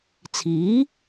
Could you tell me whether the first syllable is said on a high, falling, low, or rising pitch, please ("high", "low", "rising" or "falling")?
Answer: rising